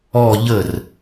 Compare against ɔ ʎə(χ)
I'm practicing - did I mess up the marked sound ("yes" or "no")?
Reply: yes